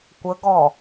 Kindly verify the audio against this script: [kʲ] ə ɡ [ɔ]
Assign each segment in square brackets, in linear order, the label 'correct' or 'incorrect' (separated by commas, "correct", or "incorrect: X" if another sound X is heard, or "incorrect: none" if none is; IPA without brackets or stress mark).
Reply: incorrect: kʷ, correct